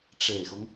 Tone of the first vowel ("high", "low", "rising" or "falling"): low